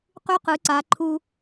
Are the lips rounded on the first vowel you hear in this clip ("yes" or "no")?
yes